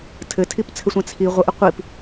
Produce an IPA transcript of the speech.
tʰ ɘ tʰ i p t͡sʰ ɘ sʷ ɛ̃ t͡sʰ i ʁʷ ə ʔ ə qʷ i p

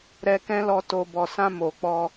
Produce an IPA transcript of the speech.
ɾ ɛ˧ k ɛ̃˦ l ɔ˧ t o˨ b ɔ˨ s ã˧ m o˨ k͡p ɔ˧

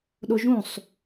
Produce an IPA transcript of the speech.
ɗ o ʒ ũ sˤ

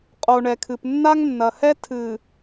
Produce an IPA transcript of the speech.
qʼ o˨ ɳ ɛ˨ kʰ ɨ˨ p nː a˦ ŋ nː ɐ˨ h ɛ˦ tʰ ɨ˨

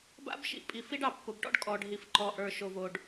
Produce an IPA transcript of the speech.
b a̰˦ b ʃ ḭ˨ pʼ i˨ f i˦ ɖ ɑ˨ pː ʊ˨ b ʈ ɔ̰˦ ɖ kʼ ɔ˨ ɖ ɦ i˨ f ǃ ɔ˨ ʔ ə˞˨ ʃ o˨ v o˨ ɖ

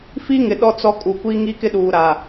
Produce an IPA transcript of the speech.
f i˦ ŋ ɪ˨ ɗ ɔ˦ t͡s ɔ˦ kʼ u˨ kʷ i˦ ŋ i˦ k ɪ˦ ɗ uː˨ ɾ a˨

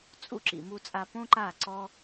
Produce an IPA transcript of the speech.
t͡sʼ ṵ˧ ǁ ḭ˨ m u˧ t͡sʼ a˧ p õ˦ ǃ a˦˨ ǀ ɔ˦

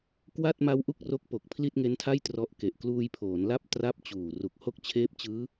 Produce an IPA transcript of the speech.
k w a˥˩ t̚ m a˦˥ w ʔ u˥˩ k̚ r o˦˥ k̚ p o˨˩ k̚ pʰ l i˥˩ t̚ ŋ e˦˥ n tʰ a˥˩ j t r ɔ˦˥ ʔ k e˨˩ ʔ k l uː˧ j pʰ oː˩˦ n l a˥˩ p̚ t r a˥˩ p̚ t͡ɕ uː˨˩ r u˨˩ k̚ h o˥˩ k̚ t͡ɕʰ eː˦˥ p̚ t͡ɕ ɯː˦˥

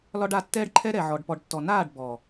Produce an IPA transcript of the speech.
l ɒ˦ ɖ a˧ tː ɛː˦ ɖ ǃʰ ɛ˦ ɾ ɛ˨ ʕ ɔ˨ ɖ p ɔ˨ ɖ tː ɔ˨ n aː˦˨ ɖ b ɔ˨

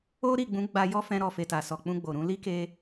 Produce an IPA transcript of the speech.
o˦ ɾ i˦˨ ɡ͡b ũ˨˦ ɡ͡b a˧ j ɔ˦ f ɛ̃˧ ɾ ɔ˨ f e˨ t a˨ s ɔ˨ k͡p ũ˧ ɡ͡b o˨ ɾ ũ˨˦ l i˦ k e˧

